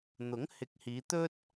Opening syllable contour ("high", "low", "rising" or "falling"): rising